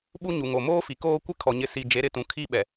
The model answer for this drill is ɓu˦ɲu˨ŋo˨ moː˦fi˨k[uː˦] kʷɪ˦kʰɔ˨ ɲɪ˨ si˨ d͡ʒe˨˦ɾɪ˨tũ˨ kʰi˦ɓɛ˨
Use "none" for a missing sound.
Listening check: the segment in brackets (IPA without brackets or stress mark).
oː˦